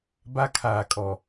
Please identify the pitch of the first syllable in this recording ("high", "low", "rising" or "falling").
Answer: high